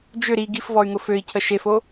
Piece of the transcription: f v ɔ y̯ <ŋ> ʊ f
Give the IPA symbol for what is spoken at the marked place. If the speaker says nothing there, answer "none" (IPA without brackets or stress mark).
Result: ŋ